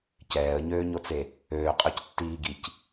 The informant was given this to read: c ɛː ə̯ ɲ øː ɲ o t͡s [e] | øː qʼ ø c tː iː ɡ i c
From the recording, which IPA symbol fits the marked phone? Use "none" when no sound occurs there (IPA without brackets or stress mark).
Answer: e